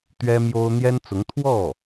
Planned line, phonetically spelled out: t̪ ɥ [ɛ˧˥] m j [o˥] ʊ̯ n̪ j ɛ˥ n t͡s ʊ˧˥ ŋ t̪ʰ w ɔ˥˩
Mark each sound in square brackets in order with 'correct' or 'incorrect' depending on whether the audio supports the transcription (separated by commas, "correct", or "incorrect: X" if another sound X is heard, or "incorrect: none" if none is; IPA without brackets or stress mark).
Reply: incorrect: ɛ˥, correct